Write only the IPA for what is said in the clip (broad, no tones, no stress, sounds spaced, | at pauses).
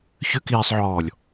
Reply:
ç ʏ k iː sˤ ʕ ɔː lʲ